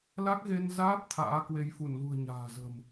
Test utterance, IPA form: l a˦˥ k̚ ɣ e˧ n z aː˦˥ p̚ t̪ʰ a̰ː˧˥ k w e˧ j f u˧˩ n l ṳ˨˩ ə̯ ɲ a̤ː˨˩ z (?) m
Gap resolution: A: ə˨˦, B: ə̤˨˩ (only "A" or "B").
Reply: B